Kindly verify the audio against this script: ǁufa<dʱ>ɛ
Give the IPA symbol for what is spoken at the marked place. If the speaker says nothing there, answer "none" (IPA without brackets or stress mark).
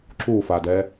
d